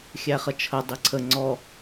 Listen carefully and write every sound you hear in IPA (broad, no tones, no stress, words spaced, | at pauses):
xʲæχət͡ʃʰə dˤiǀʰə ŋ͡ǀɔ